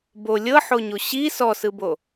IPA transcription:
b o lʲ ɤ ħ o ɲ o ɕ i s ɔ s ɯ b o

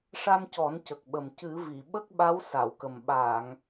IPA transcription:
ʂ a˧ m c ɔ˨˩˦ n c ə˨˩ k̚ ɓ ə˨˩ m c ɨ˨˩˦ v i˨˩˨ ɓ ə˦˥ k̚ ɓ a˧˥ w s a˨˩˨ w k ə˨˩ m ɓ aː˨˩˨ ŋ

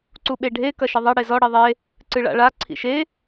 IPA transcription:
ǀ u ɓ e ɖʱ e k ɐ ʃ ɘ ðˤ ɐ ɽ e z ɔ ɽ i ðˤ e | ǀ ɨ ɭ a̰ ɭ a ǀʰ ḭ ʃ e

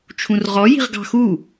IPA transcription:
t͡ʃʰ ũ r ʁ ɔ j i̤ ʁ ɡ ɑ̤ x u

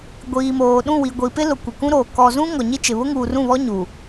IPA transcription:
ɡʷ iː˨ m oː˨ ɗ ũ˦˨ w i˨ ɡʷ i˨ p ɪ˦ l ʊ˨ kʷ ɪ˨ k ũ˦ ɾ oː˨ k ɔ˨ z ũ˦ ŋ ɔ˨ ɲ i˦ t͡ʃ ɪ˨ β ʊ˦ ŋ uː˨ r ũ˦˨ β ɔ˦ ɲ u˨

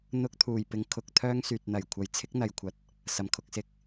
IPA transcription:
n̪ ʊ˧ k̚ t̪ʰ uː˨˩ j p ɪ˧ ŋ kʰ ʊ˧ k̚ t̪ʰ œː˥ ŋ s yː˨ t̚ n̪ ɐ˨˩ j kʷʰ ɐ˨˧ j t͡sʰ ɪ˥ k̚ n̪ ɐ˨ j kʷʰ ɐ˨ t̚ | s ɐ˨˩ m kʰ ʊ˧ k̚ s ɪ˧ k̚

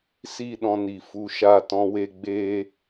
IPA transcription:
s i˦˨ ɗ ɔ̃˦ n i˨ f u˧ ʃ a˦˨ t ɔ̃˦ w e˦ ɡ͡b e˦

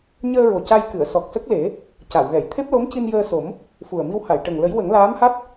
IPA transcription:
ɲ əː˧ ɹ o˨˩ c a˧ j k ɨ˨˩˨ ə̯ s ɔ˨˩ k̚ s ə˦˥ k̚ l e˨˩˦ | c a˨˩˨ w ɣ ɛ˨˩˨ j t̪ʰ e˦˥ p̚ l o˧˥ m c i˧ n j əː˧ s o˨˩˦ m | f u˨˩ ə̯ m i˧ w h a˨˩˨ j ʈ ə˨˩ ŋ l ə˨˩˦ j w ə˨˩˦ ŋ l aː˧˥ m h a˦˥ t̚

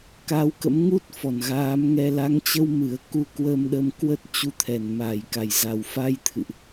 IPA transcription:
k a˨˦ w k ə̰˧˥ m ŋ u˦˥ t̚ f ɔ˧˩ n ɣ aː˨˦ m ŋ ɛ˧ l a˨˦ ŋ t͡ɕ ə˧ w m ɨ˨˩ ə̯ k u˧ k w əː˧ m ɗ ə˧ m k w ə˦˥ t̚ t͡ɕ u˧ t̪ʰ ɛ˧˩ n m aː˧˩ j k a˨˩ j z a˨˩ w f a˧ j t̪ʰ ɨ̰˧˨ ʔ

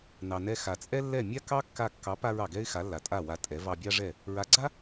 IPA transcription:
n ɑ˩ n ɛ˧ x a˩ t͡sʼ ɛ˥ lː ɛ˥˩ mʲ a˥ k ɑ˥ kː a˧ kː ɑ˩˥ p a˧ ɹ ɑ˩ ɡ ɛ˥ ɪ̯ x a˩˥ lː a˩ tʼ a˥˩ w a˧ tʼ ɛ˩˥ v ɑ˧ bʲ ɑ˥ ʐ ɛ˥˩ | ɹ a˩˥ ɡ͡ǀ a˥

